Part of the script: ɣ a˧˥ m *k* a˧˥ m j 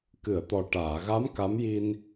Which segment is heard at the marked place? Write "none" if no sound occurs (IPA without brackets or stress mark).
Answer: k